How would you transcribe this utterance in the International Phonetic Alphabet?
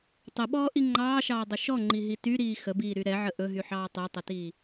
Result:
tˤ ə ɓ ɔː ʔ i ŋ͡ǃ ɑː ʃ ɑː dˤ ɵ ʃ ɔ ŋ͡ǃ i ɦ i t y ɾ iː x ə b iː ɾ y ɾ ɛ ʕ ə ʔ ɵ ɦ y ħ ɑː tˤ ɛ tˤ ə t iː

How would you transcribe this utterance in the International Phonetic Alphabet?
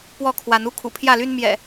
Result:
p w ɔ˥˨ kʰ w a˨˦ n u˦ kʰ ṵ˨˩ pʰ j ä˥˨ l y˦ n m j ɛ̰˨˩

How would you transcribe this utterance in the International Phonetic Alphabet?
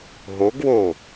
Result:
ɦ o ɡ w o

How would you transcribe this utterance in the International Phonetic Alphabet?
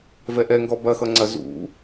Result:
v ɛ ʔ ɛ ŋ ɡ ɔ b ɐ x ʌ ŋ͡ǀ ɐ z ṵ

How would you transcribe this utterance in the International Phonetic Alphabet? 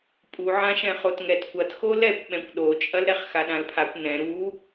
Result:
pʼ u ʕ ã ʃ ɛ̃ χ o t ŋ ɛ t kʷ ɐ t x o l ɛ kʷ ɓ ɛ̃ kʷ ɗ o t͡ʃʼ ɐ l ɾ ɛ χ x a ɗ ã l pʰ a kʷ n ɛ̃ ɾ u

